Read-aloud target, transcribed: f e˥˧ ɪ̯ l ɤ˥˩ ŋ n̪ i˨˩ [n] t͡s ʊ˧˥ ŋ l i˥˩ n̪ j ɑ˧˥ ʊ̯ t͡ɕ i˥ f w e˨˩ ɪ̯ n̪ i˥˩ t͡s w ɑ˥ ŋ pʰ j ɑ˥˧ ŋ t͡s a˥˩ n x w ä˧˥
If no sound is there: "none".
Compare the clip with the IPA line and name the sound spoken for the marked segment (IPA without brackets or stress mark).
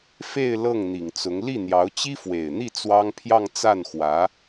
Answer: ŋ